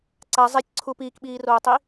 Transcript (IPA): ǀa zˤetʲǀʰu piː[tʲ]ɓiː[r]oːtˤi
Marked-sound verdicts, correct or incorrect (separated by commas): incorrect, correct